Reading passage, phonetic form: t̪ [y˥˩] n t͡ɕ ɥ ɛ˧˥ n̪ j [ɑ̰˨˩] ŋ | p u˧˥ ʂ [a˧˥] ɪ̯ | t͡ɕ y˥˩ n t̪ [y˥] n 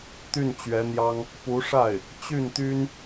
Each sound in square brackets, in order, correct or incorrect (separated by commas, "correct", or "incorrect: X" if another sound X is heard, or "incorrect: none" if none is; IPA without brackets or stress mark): correct, incorrect: ɑ˥, incorrect: a˥˩, correct